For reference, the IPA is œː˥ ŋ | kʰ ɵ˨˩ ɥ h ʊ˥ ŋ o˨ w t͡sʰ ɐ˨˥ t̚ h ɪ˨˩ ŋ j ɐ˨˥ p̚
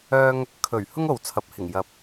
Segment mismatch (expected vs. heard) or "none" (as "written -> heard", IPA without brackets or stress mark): t̚ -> p̚